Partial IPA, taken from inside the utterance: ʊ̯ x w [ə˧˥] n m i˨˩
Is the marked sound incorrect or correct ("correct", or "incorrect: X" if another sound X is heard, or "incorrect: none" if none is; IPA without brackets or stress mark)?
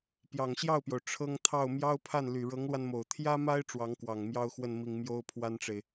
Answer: incorrect: ə˥˩